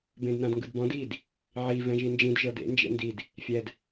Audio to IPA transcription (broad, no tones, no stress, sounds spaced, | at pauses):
b ẽ d n ã d ŋ ɡ ɯ d b ɔ̃ d i d | ʕ i v ɛ̃ ʒ i n d͡ʒ ĩ d ʒ ɤ d ḛ n d͡ʒ ḛ n d i d | fʲ ɛ d